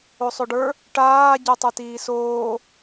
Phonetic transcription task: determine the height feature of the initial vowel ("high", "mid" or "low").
mid